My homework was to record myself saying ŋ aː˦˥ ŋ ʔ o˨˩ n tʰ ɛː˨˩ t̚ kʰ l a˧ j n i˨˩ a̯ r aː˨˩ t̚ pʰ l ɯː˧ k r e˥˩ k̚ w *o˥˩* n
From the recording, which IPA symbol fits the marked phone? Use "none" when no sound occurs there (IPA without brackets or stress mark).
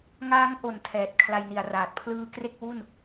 u˥˩